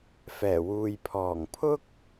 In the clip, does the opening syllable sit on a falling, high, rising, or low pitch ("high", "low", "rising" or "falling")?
low